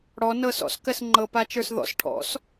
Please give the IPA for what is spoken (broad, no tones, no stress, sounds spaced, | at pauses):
ɽ ɔ n ɤ s ɔ̰ s k ɜ s ŋ͡ǃ ɤ p a t͡ʃ ə˞ s ð ɔ̰ s ʈʰ ɔ̰ s